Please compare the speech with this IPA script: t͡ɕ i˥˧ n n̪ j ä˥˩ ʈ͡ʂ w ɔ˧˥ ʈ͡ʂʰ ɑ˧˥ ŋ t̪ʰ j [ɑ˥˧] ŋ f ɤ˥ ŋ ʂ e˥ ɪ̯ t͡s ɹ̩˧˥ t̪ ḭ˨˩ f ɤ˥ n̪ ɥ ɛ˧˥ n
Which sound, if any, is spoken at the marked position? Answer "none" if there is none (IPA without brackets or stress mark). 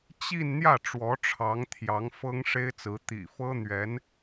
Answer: ɑ˧˥